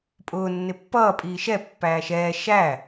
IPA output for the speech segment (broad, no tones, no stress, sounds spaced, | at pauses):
pʼ ʊː nː ɪ pː ʌː pʼ iː ʃ ɛ pː æː ʃ ɛː ʃ æ